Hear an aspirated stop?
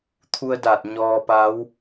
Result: yes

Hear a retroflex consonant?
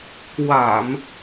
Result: no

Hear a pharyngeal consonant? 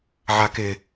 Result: yes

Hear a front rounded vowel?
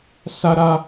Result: no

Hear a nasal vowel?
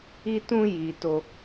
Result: yes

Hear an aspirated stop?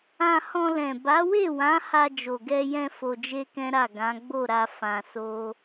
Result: no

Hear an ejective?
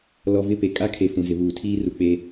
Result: yes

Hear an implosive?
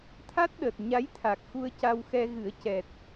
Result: yes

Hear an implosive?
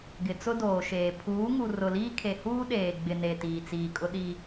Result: yes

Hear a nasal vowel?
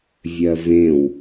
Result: yes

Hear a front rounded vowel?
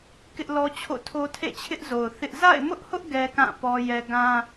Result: no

